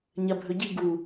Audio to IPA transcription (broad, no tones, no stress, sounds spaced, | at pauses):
ɲ ɐ bʱ ɵ ɟ i ɡ u